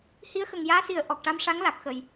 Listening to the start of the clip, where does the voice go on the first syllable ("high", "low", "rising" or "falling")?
rising